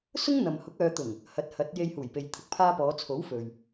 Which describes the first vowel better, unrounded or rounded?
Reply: rounded